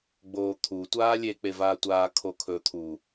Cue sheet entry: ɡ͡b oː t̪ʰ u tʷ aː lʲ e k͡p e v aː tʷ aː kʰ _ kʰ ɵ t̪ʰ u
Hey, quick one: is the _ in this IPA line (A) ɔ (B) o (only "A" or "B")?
B